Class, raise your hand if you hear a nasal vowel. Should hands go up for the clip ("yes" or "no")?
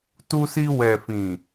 yes